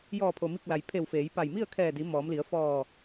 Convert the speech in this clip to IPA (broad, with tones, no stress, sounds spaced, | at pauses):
j ɔː˧˩ pʰ o˩ m i˧˩ k̚ l a˩ j pʰ e˧˩ w f eː˩˧ j p a˧˩ j m i˥˨ ə̯ kʰ ɛː˧˩ d i˩˧ m ɔː˩˧ m l i˩˧ ə̯ f ɔː˧˩